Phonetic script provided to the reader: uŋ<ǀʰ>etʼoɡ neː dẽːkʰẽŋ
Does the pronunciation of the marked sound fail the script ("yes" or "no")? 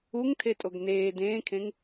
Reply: yes